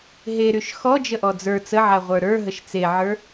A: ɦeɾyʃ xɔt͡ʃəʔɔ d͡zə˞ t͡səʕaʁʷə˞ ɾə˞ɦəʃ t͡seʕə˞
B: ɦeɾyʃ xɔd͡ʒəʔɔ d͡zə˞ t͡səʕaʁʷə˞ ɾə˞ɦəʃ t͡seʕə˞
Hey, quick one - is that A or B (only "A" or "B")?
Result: B